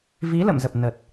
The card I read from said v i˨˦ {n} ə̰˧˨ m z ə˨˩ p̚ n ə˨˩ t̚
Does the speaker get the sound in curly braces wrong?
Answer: yes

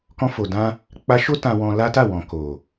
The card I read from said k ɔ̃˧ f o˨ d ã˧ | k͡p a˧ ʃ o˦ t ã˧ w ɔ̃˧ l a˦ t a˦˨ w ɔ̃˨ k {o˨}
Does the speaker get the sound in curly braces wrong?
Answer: no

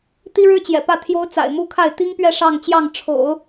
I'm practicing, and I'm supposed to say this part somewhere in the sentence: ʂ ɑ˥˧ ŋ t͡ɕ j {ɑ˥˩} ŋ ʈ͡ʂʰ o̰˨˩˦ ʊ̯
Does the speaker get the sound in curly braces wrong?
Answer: no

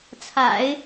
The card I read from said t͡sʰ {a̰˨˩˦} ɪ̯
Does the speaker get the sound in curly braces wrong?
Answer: no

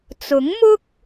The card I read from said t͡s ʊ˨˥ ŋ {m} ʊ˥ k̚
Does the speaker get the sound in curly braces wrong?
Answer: no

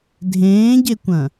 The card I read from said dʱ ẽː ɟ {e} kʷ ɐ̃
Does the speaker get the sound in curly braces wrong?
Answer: no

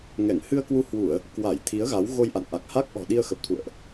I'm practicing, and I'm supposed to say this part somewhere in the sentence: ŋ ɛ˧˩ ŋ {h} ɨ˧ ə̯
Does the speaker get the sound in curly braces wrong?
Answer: no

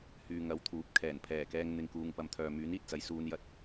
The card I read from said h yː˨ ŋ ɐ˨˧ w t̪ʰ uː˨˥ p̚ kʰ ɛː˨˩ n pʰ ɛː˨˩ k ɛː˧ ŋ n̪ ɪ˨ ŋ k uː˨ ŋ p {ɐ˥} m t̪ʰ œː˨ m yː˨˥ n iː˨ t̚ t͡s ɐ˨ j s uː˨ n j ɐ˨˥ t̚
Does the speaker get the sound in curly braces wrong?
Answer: yes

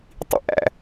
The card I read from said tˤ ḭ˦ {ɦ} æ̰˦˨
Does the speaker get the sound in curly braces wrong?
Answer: yes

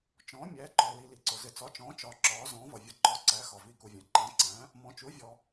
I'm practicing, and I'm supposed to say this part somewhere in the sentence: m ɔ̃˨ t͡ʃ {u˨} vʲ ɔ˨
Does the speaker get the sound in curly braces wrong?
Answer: yes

